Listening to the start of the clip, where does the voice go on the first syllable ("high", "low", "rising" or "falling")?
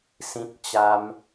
high